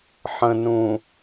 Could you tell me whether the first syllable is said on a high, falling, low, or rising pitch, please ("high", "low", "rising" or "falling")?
low